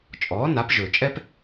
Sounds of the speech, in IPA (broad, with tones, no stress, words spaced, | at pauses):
t͡ʃʼɔː˩˥ na˩˥pʒɵː˩t͡ʃʼɛ˥p